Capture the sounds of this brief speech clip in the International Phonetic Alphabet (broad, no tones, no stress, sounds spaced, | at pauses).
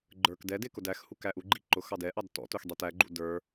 ɡ͡ǃ ə˞ k d ɛ d ɪ k ʊ d æ x h u k æ ʔ u ɡ͡ǃ i ǃ ʊ x ɑ d ɛ ʔ ɑ d t ɔ̰ t ʊ x dˤ i t æ ɡ͡ǃ ṵ d ə˞